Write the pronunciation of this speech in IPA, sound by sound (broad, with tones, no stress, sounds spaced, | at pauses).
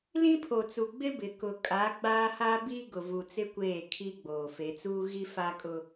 l ĩ˦ pʰ o˨ t͡s u˨ ɡ͡b ɪ˦ b ɪ˨ k ʊ˨ kʼ a˨˦ ɡ͡b aː˦ h a˦ b i˦ ɡ ʊ˨ v u˨ t͡s ɪ˦ kʷ eː˦˨ kʰ i˦ ɡ͡b oː˨ f e˨˦ t͡s uː˦ ɣ i˦ f a˦ kʼ ʊ˦